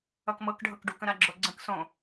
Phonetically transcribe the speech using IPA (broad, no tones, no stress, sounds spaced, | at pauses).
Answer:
ʌ k m ɤ k ɖʱ ɤ k ɖ u k ə̃ ɾ a ɡ͡ǁ o ɡ͡ǀ ə̃ k s õ